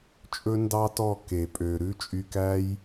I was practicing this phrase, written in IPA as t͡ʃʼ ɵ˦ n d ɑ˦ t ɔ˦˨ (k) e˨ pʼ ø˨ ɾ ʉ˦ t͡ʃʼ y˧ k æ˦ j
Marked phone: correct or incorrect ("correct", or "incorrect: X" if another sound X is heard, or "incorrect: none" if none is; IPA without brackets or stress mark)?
correct